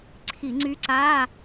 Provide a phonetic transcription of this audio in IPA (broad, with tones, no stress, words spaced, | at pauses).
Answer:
ǀʰi˧˩˧ŋ͡ǀy˧˥ǀaː˧˥˧